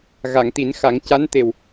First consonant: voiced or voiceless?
voiced